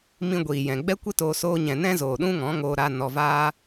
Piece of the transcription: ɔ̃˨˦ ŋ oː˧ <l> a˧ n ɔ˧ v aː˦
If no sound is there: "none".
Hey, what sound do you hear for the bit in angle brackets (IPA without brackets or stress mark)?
ɾ